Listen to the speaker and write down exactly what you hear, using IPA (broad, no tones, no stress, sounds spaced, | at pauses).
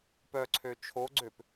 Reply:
p œ ǀʰ ø t͡ʃʰ o ɡ͡ǀ ø p